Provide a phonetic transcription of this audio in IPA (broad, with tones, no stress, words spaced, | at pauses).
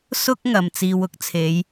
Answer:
sʊ˥k̚ ŋɐ˨˧mt͡siː˧w ʊ˥k̚t͡sʰe˨˥j